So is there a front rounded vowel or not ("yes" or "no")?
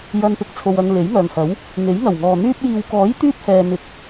yes